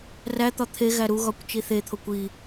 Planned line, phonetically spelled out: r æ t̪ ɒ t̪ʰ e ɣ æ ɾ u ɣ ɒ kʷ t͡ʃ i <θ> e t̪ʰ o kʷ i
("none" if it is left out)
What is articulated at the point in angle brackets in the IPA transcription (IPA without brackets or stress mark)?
θ